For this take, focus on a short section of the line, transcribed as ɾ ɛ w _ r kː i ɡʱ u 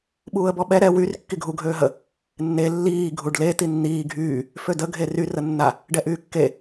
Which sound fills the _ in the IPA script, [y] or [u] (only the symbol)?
y